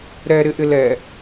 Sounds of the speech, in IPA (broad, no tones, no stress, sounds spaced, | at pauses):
ɾ ɛ ɾ ɪ ʔ ɪ l ɛ